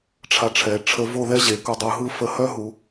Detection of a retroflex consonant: present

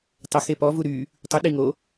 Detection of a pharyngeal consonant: absent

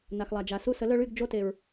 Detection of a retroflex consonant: present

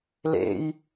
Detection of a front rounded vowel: absent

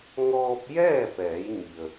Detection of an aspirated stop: absent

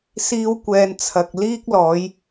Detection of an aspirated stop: present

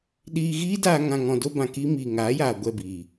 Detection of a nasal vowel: present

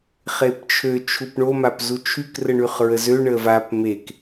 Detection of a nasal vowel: absent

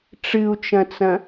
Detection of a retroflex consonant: present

